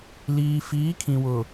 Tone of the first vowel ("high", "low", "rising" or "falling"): low